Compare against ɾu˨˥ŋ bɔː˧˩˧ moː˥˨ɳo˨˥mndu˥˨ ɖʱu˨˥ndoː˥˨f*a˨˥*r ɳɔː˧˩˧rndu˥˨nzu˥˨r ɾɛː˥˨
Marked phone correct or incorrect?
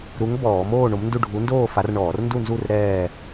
correct